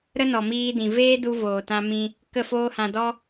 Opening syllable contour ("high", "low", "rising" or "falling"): high